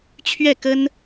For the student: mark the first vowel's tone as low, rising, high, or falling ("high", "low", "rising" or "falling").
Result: falling